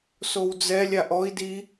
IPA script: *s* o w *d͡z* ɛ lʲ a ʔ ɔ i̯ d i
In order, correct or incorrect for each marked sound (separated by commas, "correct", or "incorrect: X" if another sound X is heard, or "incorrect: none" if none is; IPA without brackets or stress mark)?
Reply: correct, correct